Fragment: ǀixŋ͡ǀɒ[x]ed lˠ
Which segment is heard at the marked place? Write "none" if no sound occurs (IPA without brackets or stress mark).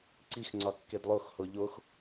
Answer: kː